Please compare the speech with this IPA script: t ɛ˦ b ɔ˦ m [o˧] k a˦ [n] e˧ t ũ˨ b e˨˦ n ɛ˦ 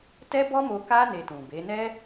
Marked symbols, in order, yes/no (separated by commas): yes, yes